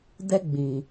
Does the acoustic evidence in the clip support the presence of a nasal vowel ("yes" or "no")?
yes